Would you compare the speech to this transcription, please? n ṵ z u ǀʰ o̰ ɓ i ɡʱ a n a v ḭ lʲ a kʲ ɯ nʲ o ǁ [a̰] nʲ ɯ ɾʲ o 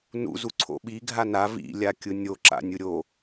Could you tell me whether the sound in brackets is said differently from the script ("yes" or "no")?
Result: no